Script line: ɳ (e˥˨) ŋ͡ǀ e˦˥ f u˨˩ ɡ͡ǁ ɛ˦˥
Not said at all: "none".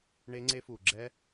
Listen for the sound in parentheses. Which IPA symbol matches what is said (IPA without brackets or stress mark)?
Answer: e˦˥